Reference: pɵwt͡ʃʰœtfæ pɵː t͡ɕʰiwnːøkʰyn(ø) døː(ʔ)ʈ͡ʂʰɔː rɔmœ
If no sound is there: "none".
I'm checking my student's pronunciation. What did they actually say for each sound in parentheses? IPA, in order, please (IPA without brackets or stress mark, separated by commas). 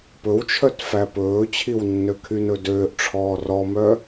ɵ, ʔ